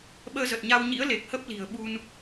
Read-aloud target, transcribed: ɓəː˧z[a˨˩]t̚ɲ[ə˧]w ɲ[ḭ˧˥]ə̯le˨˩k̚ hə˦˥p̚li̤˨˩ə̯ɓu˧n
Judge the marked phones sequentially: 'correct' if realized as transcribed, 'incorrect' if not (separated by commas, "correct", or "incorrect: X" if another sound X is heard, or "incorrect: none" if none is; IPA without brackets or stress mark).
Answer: incorrect: ə˨˩, incorrect: a˧, correct